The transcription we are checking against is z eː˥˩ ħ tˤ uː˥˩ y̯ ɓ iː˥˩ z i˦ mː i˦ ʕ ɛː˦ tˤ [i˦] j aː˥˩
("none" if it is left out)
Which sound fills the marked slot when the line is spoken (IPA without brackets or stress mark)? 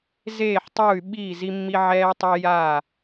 i˦